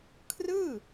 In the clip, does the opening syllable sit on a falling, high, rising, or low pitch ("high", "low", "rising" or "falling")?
falling